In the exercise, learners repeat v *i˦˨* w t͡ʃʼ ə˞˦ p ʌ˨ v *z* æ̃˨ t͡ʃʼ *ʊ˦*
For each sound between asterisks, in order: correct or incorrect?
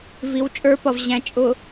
incorrect, incorrect, incorrect

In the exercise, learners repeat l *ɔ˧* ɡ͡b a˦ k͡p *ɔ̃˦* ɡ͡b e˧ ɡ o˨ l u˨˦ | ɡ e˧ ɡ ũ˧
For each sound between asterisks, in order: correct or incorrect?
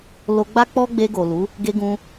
incorrect, incorrect

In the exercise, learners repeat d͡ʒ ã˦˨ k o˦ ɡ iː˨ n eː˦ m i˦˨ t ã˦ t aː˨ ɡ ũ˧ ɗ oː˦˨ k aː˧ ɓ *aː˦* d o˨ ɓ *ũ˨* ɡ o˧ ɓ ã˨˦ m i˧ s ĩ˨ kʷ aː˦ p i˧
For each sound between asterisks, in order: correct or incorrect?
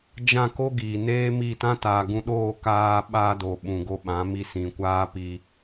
incorrect, correct

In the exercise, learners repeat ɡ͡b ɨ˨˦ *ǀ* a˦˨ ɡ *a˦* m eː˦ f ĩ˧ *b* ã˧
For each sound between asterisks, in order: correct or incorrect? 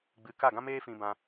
incorrect, incorrect, correct

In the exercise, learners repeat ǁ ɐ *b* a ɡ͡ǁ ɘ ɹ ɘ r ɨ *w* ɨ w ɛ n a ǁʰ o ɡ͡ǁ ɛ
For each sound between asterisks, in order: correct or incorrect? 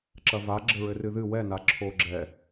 incorrect, incorrect

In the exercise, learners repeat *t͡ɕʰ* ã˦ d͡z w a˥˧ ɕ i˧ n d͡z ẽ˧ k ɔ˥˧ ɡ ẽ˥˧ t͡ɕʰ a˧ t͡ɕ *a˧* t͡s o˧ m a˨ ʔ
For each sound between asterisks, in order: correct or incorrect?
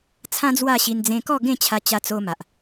incorrect, correct

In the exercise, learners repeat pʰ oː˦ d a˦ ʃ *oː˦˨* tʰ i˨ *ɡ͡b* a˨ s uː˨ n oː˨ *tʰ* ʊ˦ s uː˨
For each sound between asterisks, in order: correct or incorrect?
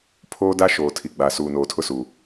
incorrect, correct, correct

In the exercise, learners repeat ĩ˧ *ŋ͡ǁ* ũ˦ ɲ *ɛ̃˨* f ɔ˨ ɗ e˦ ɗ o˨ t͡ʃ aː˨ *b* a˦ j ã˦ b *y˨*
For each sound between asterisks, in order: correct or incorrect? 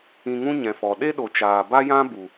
incorrect, correct, correct, incorrect

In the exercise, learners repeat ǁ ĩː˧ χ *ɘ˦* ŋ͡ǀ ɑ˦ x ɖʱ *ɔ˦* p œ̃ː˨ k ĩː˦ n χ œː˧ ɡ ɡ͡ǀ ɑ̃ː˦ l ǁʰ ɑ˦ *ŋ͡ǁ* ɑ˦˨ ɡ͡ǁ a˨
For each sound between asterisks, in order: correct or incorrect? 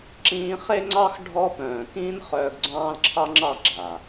incorrect, correct, correct

